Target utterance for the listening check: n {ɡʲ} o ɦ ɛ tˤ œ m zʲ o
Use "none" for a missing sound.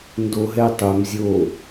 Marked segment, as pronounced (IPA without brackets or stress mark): d